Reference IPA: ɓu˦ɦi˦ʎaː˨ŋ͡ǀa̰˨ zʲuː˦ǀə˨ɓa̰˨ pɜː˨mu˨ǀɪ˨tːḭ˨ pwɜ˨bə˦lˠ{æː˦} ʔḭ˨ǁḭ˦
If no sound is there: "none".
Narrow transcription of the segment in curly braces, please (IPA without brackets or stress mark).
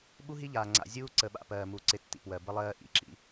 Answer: ɜː˦